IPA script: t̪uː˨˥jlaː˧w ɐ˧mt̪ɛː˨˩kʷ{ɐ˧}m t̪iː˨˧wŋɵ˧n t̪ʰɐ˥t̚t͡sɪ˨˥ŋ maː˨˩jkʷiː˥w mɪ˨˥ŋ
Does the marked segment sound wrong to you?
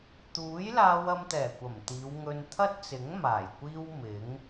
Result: yes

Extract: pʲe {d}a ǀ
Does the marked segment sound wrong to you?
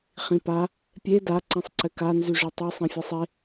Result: no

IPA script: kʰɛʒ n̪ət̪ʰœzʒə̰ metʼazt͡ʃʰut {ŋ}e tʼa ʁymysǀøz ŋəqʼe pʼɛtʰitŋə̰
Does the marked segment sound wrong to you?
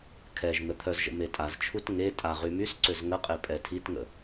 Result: no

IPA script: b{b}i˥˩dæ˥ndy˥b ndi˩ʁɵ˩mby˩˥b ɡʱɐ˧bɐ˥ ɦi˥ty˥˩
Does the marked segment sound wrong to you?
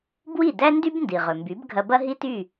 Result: yes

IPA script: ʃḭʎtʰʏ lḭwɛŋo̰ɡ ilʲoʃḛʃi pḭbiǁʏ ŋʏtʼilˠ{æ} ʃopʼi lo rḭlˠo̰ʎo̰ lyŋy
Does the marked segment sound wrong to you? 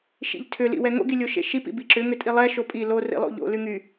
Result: yes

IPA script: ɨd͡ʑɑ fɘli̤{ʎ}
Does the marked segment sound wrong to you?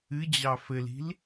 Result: yes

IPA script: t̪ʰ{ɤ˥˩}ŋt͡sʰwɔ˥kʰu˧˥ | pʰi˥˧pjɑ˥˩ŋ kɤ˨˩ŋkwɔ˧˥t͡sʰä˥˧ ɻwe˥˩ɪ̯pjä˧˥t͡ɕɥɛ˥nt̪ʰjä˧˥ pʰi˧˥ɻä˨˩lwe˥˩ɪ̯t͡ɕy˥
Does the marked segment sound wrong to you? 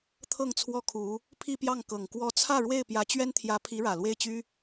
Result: no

